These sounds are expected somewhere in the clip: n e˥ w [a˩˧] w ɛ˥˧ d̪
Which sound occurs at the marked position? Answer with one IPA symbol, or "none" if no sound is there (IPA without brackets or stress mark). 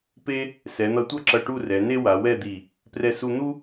a˩˧